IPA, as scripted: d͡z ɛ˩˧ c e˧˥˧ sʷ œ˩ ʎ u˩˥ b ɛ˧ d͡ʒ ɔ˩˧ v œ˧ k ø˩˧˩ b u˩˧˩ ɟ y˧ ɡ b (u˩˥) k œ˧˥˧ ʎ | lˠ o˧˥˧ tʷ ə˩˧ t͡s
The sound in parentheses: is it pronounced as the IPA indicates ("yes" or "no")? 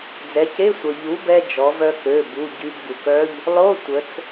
no